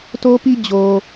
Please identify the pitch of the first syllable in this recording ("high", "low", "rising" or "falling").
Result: high